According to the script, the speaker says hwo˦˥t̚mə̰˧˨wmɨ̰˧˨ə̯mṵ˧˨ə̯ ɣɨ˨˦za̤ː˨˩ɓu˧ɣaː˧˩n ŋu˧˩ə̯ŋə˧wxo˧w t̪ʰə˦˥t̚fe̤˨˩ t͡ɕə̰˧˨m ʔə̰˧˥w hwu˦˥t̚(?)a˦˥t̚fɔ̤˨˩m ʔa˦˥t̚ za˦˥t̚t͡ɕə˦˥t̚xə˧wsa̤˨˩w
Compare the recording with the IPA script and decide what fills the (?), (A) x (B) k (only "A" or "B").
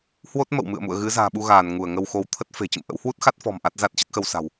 A